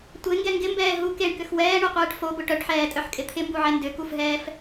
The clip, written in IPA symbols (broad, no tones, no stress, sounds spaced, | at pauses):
tʷ e ŋ ɡ ɛ ŋ ɡ ɪ m b ɛː ɦ u k e ɳ k ʏ x w ɛː ɳ y qʷ ɛː ʈ f o b ʊ ʈ œ ʈ ħ ɛː tʼ œ ħ kʼ ɪ t̪ʰ ɪ m b u ʕ ɛ n d ʏ k u f ɦ ɛː f